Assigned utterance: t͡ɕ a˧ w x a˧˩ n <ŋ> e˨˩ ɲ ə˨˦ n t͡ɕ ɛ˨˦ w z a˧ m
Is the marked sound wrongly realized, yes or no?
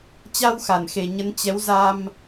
yes